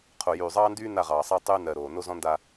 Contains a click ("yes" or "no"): no